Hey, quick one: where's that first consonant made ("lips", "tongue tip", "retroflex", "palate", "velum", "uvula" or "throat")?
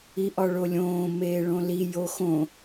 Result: throat